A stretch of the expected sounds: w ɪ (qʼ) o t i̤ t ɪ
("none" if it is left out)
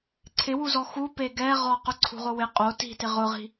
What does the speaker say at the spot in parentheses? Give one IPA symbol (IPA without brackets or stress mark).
qʼ